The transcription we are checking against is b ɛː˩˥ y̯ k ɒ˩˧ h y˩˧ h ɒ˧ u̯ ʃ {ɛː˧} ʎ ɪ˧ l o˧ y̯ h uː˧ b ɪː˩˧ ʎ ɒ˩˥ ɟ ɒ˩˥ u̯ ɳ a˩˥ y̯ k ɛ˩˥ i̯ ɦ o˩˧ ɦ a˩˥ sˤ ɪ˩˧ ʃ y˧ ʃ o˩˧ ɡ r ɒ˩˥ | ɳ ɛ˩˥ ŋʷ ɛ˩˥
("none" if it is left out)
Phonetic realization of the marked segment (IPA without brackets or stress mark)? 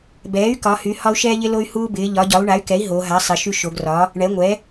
ɛː˧